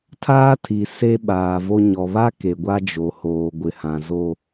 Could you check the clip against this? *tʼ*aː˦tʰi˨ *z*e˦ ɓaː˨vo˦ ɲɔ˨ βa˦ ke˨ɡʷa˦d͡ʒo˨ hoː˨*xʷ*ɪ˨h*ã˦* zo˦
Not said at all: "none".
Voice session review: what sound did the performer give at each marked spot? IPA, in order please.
tʰ, s, ɡʷ, ã˨

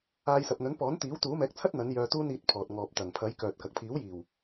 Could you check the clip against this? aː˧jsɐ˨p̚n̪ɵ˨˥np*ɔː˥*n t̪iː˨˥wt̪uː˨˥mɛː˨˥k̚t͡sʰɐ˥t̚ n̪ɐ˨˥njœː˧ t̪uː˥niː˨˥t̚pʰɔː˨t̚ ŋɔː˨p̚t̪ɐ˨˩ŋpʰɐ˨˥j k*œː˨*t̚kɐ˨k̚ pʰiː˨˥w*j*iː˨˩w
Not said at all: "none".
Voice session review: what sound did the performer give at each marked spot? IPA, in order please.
ɔː˨˥, œː˨, j

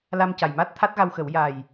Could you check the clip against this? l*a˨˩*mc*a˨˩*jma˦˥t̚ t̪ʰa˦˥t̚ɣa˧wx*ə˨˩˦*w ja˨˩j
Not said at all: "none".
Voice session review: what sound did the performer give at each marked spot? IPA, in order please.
a˧, a˨˩, ə˨˩˦

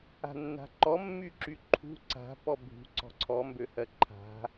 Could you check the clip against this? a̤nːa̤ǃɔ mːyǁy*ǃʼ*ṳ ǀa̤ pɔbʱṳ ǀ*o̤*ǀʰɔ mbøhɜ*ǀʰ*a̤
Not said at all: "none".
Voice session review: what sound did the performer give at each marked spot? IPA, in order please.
ǃʰ, ɔ̤, ǃʰ

